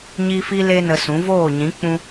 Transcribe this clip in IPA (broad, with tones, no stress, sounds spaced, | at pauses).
ɲ i˦ f i˦ l e˧ n ə˧ s ũ˨˦ v oː˦˨ ɲ ĩ˨˦ k͡p ũ˧